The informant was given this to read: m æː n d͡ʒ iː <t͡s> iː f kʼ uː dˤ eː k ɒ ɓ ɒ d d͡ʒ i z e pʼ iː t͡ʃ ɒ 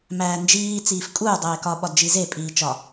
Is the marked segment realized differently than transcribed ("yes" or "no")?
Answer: no